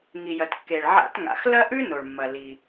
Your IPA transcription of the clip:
ŋ i˩ j ɐ˩ t kː e˩ ɭ ʕ a̰˧˩˧ t ŋ a̰˩ x l ɐ˥ ʔ ʉ˥ n o˩ ɭ mː ɐ˩ l i˩

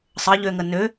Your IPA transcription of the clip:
sˤ ə ʎ ø ŋ ə n ø

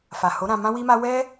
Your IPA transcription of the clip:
f a˨ h o˨˦ ɾ ã˧ m ã˦ w i˦ m a˦ w ɛ˦

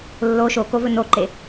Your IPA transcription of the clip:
lː o ʃ o k o v ɵ n o ǃ e

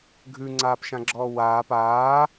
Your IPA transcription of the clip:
ɡʱ ʉ ŋ͡ǀ aː p ʃ ã ɡ͡ǁ ɔː w aː p aː

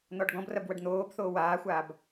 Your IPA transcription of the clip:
n̪ ɔ ɖ ɡ ɔ̃ b r ɐ b w ɐ ɖ n̪ oː b θ oː w aː xʷ aː b

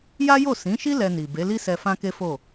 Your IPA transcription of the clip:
j a˦ j o˦˨ s ĩ˨˦ ʃ i˦ l ɛ˧ n i˨ b e˨˦ l i˦ s ɛ˧ f ã˦ k e˦ f o˦˨

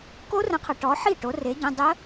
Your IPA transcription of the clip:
k o˦˥ r ə̃˨˥ qʰ ɐ˨ ʈ ɔ˨˥ ħ i˥˩ ʈ o˨˥ r e˨˥ ɟ ɐ̃˧˥˧ dˤ ə˦˥

